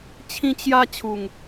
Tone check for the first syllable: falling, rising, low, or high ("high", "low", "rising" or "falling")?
high